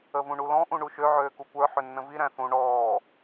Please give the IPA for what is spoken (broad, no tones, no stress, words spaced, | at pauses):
əvũɳulɔ̃ ʔũɳuʃø ʕøːkukʷə˞ ħʏnːə̃vi ɾæ̃θũ ɳɔː